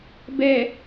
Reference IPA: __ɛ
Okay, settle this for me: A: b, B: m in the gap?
A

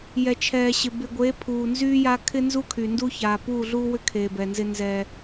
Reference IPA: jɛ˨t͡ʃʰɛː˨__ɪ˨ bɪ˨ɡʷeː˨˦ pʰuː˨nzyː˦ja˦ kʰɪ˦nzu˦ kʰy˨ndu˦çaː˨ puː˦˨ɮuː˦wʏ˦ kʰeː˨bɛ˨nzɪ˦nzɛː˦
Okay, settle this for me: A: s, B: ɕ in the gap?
B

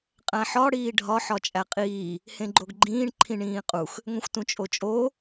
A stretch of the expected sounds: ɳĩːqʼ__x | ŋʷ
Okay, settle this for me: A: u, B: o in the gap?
A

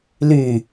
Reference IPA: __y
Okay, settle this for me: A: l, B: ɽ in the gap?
A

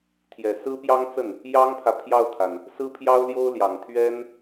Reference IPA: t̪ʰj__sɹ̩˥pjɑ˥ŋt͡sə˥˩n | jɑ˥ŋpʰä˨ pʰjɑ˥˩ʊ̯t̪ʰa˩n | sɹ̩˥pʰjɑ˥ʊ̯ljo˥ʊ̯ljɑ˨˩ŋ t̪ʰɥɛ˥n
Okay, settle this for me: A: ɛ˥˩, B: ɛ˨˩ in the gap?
B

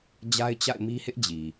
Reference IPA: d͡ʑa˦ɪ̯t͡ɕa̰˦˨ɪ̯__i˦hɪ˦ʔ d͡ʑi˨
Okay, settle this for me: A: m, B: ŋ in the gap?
A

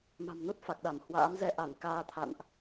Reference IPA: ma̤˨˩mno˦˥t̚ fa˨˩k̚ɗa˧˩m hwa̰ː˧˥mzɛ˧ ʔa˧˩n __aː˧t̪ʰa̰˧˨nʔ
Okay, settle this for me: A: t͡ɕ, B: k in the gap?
B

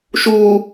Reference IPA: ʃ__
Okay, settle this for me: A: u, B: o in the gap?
A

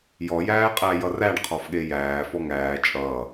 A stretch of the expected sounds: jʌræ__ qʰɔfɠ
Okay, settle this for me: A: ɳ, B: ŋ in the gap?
A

